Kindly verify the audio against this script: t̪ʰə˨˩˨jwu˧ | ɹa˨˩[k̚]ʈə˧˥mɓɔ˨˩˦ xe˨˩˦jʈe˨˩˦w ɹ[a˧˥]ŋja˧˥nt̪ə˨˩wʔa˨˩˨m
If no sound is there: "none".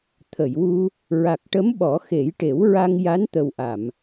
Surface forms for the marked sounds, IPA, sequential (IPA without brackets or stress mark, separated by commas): k̚, a˧